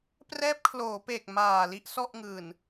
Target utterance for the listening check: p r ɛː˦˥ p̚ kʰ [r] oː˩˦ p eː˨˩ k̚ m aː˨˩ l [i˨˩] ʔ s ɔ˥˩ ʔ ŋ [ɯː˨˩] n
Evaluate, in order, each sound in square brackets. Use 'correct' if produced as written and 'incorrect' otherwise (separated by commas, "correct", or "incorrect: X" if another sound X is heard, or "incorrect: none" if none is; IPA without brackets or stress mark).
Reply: incorrect: l, incorrect: i˦˥, correct